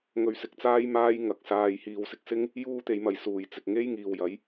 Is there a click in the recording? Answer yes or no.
no